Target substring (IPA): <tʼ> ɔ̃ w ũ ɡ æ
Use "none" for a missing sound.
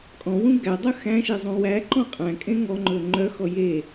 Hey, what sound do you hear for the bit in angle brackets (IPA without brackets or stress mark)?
kʼ